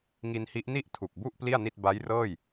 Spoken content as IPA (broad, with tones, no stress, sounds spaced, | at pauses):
ŋ i˧ n h i˦˥ ʔ n i˥˩ ʔ tʰ u˨˩ k̚ b u˥˩ ʔ p l i˥˩ a̯ n i˥˩ t̚ b a˦˥ j r ɤː˥˩ j